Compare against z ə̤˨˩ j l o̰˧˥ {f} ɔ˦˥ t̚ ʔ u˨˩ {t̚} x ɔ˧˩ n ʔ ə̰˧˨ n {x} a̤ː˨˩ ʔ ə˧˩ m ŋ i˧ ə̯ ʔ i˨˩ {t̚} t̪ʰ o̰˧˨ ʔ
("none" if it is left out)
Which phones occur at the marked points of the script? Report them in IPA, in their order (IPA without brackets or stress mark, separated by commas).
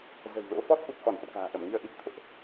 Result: f, k̚, k, t̚